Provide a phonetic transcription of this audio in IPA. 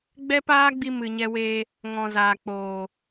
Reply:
ɡ͡b ɛ˦ p aː˦ ɡ͡b i˧ m ɨ˨ ɲ ɛ˧ w eː˧ | ŋ ɔ̃˨ z aː˨ k͡p oː˨

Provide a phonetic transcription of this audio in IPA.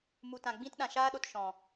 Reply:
m u˨ t ã˨ ɡ͡b ĩ˧ t ɗ ã˨ ʃ aː˧ ɗ o˨ t ʃ ɔ̃˨

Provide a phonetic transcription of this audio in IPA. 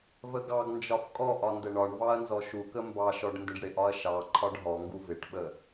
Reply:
v ə ɡ ɑ ɡ n d͡ʒ ɒ f kʼ ɔ ʔ ɒ n d ə ɳ ɒ ɳ v ɑ ɐ̯ n z ɔ ʃ u k ə m b ɑ ʃ ɔ ɖ n d ɪ ɖ ɽ ɪ ʔ ɒ ɐ̯ ʃ ɑ ǃʰ ɒ ɖ ɦ ɔ ŋ ɡ u v ɪ ʈ ɓ ə

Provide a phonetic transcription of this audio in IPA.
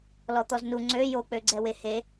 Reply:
l ɔ t̪ ɔ z n u ŋ͡ǀ ø j o k͡p ø ɡ͡ǀ ɛ w e h e

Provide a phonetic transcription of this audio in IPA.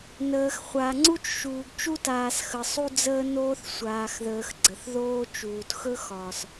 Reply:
n əː˨ x χʷ a˨ ŋ͡ǀ u˦ t͡ʃ ʃ uː˨ ɡ t͡ʃ u˦ t aː˨ s x ə˨ sˤ u˦ d͡z əː˦ n oː˦ θ sʷ aː˨ x ð əː˨ x ɡ͡ǀ ə˨ θ ð oː˦ t͡ʃ uː˨ t x ɵ˦ x ɒː˨ s

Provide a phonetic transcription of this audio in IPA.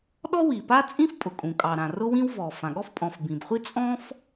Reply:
ɗ ɔ˥ w i˩ p a˥ t͡sʼ ĩ˥ f pʼ ʊ˩ kʼ ũ˩ kʼ ɑ˩ ɾ ã˩ r ʊ˥ w ĩ˥ w v ɔ˩ f ã˩ ɠ ɔ˥ f pʼ ɔ̃˩ f b ĩ˩ b χʷ i˥ t͡sʼ ɔ̃˥ f

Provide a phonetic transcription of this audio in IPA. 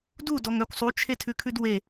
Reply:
d u d ɔ ŋ œ kʷ sˤ u t͡ʃʰ e tʰ ʉ kʰ ʉ d w e

